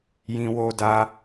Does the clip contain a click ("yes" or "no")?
no